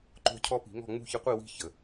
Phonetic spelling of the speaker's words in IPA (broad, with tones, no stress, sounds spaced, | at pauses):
ǃ o̤˦ cʰ ɔ˦ p i̤˨˩˦ ŋ ɔ̤˥˨ ŋ͡m ṳ˥˨ ç ɪ˦ qʷ i˥˨ w i̤˥˨ ç ə˩